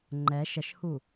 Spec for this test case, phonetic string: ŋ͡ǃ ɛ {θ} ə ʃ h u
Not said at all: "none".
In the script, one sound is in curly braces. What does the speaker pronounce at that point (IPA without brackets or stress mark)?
ʃ